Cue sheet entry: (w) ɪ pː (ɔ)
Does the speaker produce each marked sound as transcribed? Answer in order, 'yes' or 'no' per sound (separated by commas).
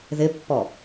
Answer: no, yes